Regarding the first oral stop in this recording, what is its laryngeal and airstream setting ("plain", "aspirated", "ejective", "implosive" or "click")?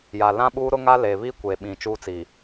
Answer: implosive